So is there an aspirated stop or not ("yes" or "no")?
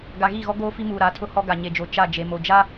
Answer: yes